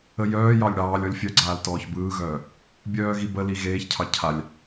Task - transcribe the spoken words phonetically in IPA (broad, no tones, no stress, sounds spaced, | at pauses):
ə j œː j ɑ lʲ ɽ ɑː lʲ ɔ lʲ fʲ œ ɡ͡ǀ aː l t ɔː ç b ɯː ɣ œː | bʲ œː ɣ i b ə l i ɣ eː ç cʰ ɑ cʰ a lʲ